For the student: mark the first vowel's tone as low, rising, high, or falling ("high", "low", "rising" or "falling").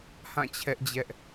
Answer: falling